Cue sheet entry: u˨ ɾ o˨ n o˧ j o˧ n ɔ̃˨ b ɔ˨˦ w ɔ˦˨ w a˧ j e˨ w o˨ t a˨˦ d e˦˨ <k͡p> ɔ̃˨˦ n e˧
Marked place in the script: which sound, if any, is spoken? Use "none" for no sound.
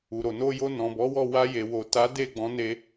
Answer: ɡ͡b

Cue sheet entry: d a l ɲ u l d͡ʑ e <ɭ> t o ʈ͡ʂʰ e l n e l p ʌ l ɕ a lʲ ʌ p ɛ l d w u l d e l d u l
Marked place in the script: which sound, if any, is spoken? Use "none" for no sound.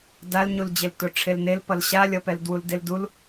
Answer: l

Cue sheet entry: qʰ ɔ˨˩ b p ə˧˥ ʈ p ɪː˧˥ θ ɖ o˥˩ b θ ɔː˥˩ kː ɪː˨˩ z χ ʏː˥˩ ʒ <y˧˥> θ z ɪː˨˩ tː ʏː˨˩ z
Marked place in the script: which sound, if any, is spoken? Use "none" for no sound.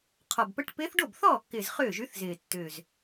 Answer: y˧˥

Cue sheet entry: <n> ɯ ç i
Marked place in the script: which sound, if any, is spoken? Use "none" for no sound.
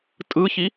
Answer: tʼ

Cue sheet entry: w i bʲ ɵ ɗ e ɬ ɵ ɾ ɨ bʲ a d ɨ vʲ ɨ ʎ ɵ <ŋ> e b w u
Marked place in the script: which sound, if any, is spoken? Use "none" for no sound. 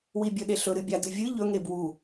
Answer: ŋ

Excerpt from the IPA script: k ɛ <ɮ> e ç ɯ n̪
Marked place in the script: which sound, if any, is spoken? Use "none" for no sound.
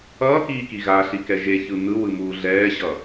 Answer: ʒ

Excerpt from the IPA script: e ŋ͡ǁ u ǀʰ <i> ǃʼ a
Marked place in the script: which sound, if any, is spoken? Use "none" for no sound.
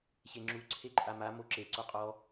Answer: e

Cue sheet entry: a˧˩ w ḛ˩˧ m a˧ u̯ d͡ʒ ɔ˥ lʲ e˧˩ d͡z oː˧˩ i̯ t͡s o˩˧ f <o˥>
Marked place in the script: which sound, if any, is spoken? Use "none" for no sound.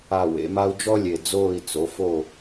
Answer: o˧˩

